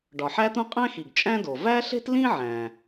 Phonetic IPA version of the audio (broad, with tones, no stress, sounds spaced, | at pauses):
ɖ ɒ˩ ħ æ˥ t̪ ũ˥ qʼ æ̃˥ x i˩ ɡ t͡ʃʼ æ̃˥ d o˩ v æ˥ ɬ e̤˥ t l ĩ˥ ʕ æ̃˩